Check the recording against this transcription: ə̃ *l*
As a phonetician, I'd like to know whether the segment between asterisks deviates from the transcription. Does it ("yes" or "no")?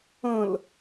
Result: no